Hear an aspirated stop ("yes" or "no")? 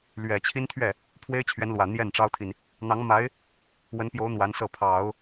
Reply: yes